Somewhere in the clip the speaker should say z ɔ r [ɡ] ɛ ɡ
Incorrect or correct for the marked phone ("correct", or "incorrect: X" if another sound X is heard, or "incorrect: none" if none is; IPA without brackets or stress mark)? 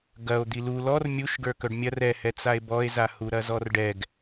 incorrect: ɖ